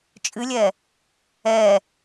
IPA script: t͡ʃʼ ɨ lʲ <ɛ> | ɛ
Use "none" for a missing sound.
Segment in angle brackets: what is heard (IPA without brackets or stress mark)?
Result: ɛ